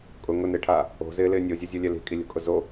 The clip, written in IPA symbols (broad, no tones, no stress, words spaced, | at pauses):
kʼʊ ŋʊnɪːʈʰaː | o̤zɪːlɪː nʲozʲozʲolʲɛ li̤kʼilʲo̤kʼʊ zo